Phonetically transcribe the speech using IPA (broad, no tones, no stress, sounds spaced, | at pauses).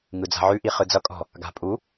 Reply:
ŋ ɯ d͡z a̤ ʕ ʉ ʔ i χ ɯ d͡z ʌ kʼ ɔ̤ | ɡ a̤ pʼ u